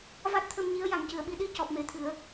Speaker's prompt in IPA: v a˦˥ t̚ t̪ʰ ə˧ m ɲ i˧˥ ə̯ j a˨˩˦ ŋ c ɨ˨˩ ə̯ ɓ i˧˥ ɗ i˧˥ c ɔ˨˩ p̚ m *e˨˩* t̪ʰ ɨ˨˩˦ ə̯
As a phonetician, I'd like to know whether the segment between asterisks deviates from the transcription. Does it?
yes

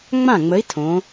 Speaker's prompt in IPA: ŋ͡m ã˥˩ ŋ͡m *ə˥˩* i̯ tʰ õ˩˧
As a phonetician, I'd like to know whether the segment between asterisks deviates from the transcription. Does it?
yes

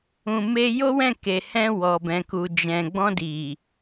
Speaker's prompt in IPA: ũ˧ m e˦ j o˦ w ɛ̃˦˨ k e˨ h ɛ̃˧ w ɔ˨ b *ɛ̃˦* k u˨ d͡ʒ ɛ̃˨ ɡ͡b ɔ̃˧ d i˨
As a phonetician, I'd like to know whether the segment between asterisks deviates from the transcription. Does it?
yes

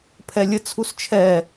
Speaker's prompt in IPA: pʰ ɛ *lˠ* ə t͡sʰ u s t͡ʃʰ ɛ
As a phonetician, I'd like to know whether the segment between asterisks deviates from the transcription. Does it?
yes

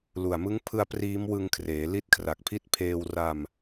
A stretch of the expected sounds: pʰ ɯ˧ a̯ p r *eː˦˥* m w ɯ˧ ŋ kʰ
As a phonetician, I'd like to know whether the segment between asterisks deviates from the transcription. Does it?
yes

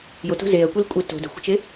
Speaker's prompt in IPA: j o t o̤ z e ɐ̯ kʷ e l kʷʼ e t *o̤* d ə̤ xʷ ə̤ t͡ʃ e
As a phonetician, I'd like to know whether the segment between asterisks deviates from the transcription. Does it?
no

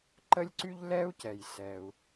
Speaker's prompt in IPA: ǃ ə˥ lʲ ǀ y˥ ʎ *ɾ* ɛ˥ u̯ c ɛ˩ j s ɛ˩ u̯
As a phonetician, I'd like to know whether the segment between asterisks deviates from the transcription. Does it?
yes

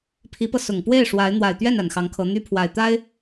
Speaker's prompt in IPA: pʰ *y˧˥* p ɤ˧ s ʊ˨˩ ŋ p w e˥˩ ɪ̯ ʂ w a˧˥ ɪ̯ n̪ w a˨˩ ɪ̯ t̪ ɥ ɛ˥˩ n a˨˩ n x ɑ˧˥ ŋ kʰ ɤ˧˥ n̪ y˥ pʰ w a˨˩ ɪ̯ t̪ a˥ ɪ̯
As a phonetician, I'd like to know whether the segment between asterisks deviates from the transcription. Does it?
yes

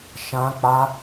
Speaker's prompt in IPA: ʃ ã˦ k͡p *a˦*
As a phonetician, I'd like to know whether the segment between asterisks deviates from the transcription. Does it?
no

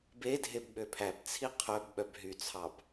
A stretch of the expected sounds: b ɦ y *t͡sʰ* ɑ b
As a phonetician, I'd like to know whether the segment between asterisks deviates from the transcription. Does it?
no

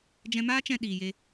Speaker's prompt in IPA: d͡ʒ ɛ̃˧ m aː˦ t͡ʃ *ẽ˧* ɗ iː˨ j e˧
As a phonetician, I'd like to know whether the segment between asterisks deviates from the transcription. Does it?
yes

